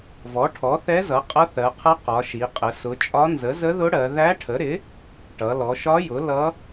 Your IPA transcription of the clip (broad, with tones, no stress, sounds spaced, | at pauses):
v ɔ˩˥ ʈʰ ɔ˩˥ θ ɛ˧˥ z ʌ˩˥ qʼ ʌ˧˥ θ ɜ˩˧ qʰ ʌ˧˥ q ɒ˩˧ ʃ i˩˧ qʼ ə˩˧ s ʊ˩˧ t͡ʃʼ ɒ˧˥ n z ə˩˥ z ə˧˥ ð ʊ˧˥ ɽ ɜ˩˧ ð æ˧˥ ʈʰ ə˩˥ ɾ ɪ˩˥ | ʈ ʌ˩˧ l ɔ˩˧ ʃ ɒ˧˥ j ʊ˩˥ l ʌ˧˥